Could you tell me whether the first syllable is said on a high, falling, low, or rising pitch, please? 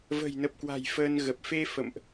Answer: low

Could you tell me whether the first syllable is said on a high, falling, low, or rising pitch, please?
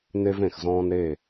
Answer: high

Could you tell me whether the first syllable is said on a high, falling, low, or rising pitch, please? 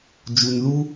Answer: high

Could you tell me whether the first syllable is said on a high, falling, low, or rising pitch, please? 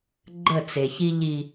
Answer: falling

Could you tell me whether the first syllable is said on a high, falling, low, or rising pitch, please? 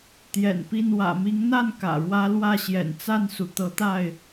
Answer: low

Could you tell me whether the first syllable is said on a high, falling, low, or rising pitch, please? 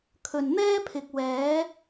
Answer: low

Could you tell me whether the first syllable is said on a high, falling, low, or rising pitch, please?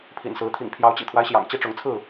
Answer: low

